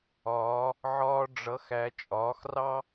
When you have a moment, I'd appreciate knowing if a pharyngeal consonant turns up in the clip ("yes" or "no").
yes